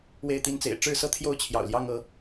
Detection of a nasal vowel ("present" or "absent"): absent